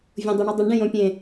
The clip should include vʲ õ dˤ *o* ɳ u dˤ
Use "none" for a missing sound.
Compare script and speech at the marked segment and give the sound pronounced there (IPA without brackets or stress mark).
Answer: o